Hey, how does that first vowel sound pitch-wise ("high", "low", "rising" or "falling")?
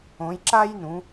rising